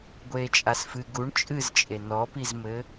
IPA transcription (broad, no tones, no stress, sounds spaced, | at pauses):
ɡʷ eː t͡ʃʼ a s f ɨ ɡ u ɳ t͡ʃʼ ɨ z t͡ʃʼ e n ɔ p i z m ɘ